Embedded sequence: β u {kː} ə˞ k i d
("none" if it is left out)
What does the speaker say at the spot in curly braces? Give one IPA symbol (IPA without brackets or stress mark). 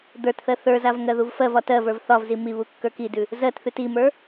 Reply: kː